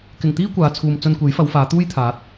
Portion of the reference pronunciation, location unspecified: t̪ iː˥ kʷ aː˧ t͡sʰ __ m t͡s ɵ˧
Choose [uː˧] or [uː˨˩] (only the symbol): uː˧